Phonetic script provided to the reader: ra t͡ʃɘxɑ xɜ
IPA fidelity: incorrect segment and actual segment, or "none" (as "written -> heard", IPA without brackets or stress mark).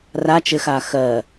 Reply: ɑ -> a